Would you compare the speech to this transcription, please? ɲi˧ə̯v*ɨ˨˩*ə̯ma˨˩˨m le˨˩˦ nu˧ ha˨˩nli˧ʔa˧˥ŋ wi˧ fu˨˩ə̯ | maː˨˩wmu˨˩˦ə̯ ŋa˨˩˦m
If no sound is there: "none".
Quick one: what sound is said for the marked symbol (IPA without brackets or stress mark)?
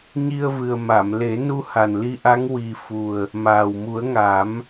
ɨ˨˩